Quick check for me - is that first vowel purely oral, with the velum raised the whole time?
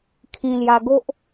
no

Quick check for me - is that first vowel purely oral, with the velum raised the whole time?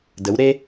yes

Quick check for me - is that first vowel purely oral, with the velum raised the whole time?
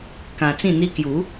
no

